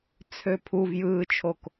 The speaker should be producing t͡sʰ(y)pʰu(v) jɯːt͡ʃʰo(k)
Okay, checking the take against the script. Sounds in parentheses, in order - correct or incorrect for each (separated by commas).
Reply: incorrect, correct, correct